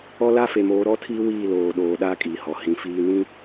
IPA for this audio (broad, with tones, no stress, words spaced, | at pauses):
ɔ˦ la˦fe˨moː˨˦ ɾɔ˦tʰi˦ wiː˦˨loː˨ɗoː˨ɗa˦ kʼiː˨hɔ˨hĩ˨˦ fiː˨nĩ˦